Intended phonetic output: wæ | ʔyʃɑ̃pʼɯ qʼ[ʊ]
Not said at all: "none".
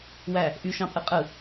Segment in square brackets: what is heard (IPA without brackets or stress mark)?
ɯ